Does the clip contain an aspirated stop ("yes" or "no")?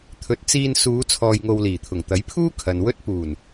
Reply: yes